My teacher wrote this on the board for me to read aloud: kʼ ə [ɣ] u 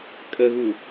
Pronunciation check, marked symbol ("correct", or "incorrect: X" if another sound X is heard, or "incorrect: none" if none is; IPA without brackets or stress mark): correct